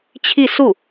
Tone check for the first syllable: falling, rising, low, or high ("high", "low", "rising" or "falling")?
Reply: falling